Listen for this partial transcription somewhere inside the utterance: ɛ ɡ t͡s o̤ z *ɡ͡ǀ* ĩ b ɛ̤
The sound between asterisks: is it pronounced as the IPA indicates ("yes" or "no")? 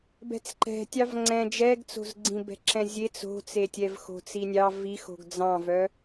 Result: yes